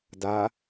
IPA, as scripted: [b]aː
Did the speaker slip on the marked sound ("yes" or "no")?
yes